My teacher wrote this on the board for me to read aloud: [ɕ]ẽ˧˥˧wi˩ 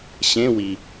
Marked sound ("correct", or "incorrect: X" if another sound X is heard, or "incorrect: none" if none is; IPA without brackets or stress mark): correct